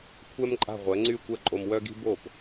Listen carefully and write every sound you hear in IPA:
kʷʰɛ˥mǃʼa̤˥˩ʁʷɛ˩˥ŋ͡ǀy˥˩ kʷɛ˥˩ǃʼo˧mwœ˥ɡi̤˥ bo˥˩p

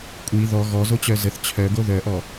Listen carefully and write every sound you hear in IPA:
kʷʼi ðɔ ɣɔzot͡ɕœ zəθ t͡ɕʰœɡo ðœʔɔ

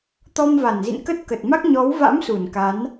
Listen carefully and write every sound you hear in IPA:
t̪ɔ˧mva˧˩nzḭ˧˨n kə˦˥t̚kə˨˩t̚ma˦˥k̚ ɲɔ˨˦wva̰˧˥msu˧˩n ka˨˦n

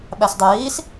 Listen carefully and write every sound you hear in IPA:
ɓæsdˤujiːs

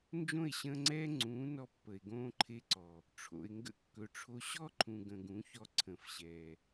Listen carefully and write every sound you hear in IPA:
nd͡ʒõ˦˨e̯ɕə̃ː˧ŋ͡ǀɛː˦ ŋ͡ǀũː˨˦nɔ˧ pːə˨e̯ɡõː˧ǃʰe˧ǀɔ˨ | ʈ͡ʂʰo̰˨e̯ŋɡə̰˧kːɵ˨ʈ͡ʂʰo˧ ɕɔ˦ǃʰũ˨ ɡə̃˨ɡũ˨˦çɔ˧ ǀʰə̃ː˨fɕɛː˨

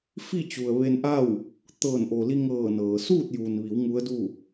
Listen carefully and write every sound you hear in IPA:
fi˥˨ t͡ɕu˩ə̯ʋe˧nʔa˥˨w | t̪ɤː˧˩nʔo˩li˧ŋɤː˧˩ nɤː˩ suː˥˨t̚juː˩nʋi˩˧w ŋu˧˥ə̯du˥˨

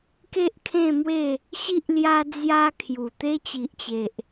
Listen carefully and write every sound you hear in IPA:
ke˦ʔkʰẽ˥˧mwe˥˧ | ɕi˦ʔ lja˧d͡zja˧ kʰju˨˩t̪e˦ t͡ɕi˨ʔt͡ɕe˨ʔ

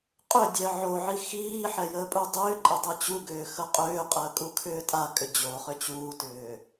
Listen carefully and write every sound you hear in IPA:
qʼʏdʲɛ ʕoʕi xiːħɛ jəːpʼudˤʏːǃʼɛ dˤɯt͡ɕuɡʏː xəqʼʏːqʼəː kʼukʰʏːtʼakʼʏ d͡ʑoχʏ t͡ɕuːtʏː

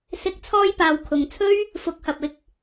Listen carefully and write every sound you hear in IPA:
sɪ˨˥k̚t͡sʰɔː˧jpaː˨w kʰʊ˨ŋt͡sʰɵ˥ɥ | fʊ˨˥k̚hɐ˨p̚ ɪ˧k̚

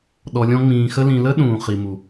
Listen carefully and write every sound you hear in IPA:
ɗɔ˨lʲɔ̃˦ ŋ͡mĩː˨xə˥ lĩ˨lə˥ ɗũː˩χi˩mu˩

